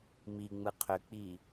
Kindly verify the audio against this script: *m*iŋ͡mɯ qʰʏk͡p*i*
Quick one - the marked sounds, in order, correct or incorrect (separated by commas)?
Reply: correct, correct